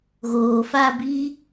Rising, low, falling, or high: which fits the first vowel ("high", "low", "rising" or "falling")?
low